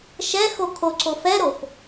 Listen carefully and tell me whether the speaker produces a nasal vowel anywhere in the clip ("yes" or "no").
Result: no